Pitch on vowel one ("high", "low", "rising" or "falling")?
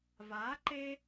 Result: rising